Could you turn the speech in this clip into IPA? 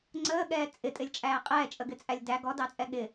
ŋ͡ǀəːɠɛː t͡sʼɪtʼɪlʲt͡ʃʼæː qʼɛːt͡ʃʼəɡɪt͡sʼælʲ dæ ɡɔdɑt͡sʼɛ ɠɪ

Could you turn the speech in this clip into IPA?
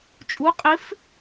t͡ʃʼu˨˥qʼɪ˨˥f

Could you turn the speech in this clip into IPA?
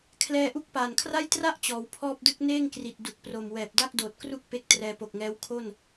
kʰlɛː˧ʔu˦˥k̚paː˨˩nkʰra˥˩j tra˥˩ʔ t͡ɕɔː˩˦wpʰɔː˥˩p̚dɯ˥˩k̚ neː˥˩ŋkri˨˩t̚ du˨˩k̚pro˨˩mwɛː˨˩p̚ da˥˩k̚doː˨˩t̚kru˥˩k̚ pe˦˥k̚trɛː˧po˨˩k̚ŋɛː˦˥w kʰo˥˩n

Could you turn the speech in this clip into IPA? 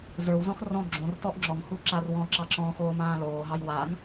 zə˞wzɔ̃x rɔ̃ ɡ͡ǁõr tɔʔŋ͡ǁɔŋhu ǁarwɔ̃ǁɑ ǁɔ̃xoː mãːloːɦɑj waŋ

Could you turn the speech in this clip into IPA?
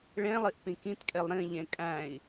ɭẽlˠiʔpĩ kĩtkʼelˠ ɾĩʎẽ kʼæ̃i̯

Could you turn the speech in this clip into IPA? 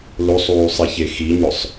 losˤuːsˤiçe xiɲʊsˤ

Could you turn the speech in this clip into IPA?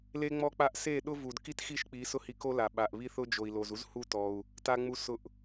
le˦ŋ͡mɔ˦k͡pa˦ʔ se˦˨ ɗʊ˦vu˨d ki˦txi˦˨ʃk͡pi˨˦ sʊ˦hi˧ko˦ la˨ ɓa˨ʔβi˦θʊ˦ d͡ʒo˨i̯lo˨zu˦z hu˦tɔ˧u̯ | ta˧ŋ͡mu˧ sʊ˧ʔ

